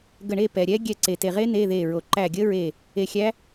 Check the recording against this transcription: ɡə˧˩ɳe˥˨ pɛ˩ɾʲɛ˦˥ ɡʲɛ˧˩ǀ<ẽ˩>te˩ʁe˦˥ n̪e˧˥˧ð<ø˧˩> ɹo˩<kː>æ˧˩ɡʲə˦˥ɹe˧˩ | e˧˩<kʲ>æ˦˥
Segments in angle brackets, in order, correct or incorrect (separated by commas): incorrect, incorrect, incorrect, incorrect